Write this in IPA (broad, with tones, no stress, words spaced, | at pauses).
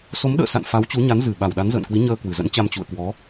so˨˦mɗə̰ː˧˨sa̰˧˨n fa˨˦wt͡ɕu˨˦ɲa˨˦nzɨ˨˩ ɓa˨˩wɗa˨˦nzə̰ː˧˨nkwi˨˦ ɲəː˧ kwɨ˨˩zə̰˧˥nt͡ɕa˧m t͡ɕṵ˧˨ə̯kwɔ˨˦